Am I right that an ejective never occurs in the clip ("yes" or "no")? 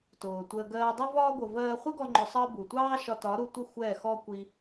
yes